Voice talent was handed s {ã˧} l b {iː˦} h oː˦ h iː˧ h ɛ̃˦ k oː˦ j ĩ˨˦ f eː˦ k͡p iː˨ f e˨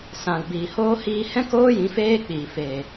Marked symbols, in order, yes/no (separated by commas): no, no